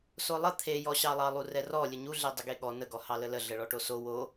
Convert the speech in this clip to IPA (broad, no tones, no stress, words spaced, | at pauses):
solˠə t̪ʰejɔɕɑlˠɑ lˠurɛrɔ lʲəɲuɮe dˤəɡeɠɔ nəɡɔ hɑlələ ɮəɭɔʈoso wo